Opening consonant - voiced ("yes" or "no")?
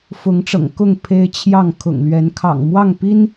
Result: no